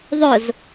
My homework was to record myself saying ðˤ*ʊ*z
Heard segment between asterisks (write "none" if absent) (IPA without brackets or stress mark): ʊ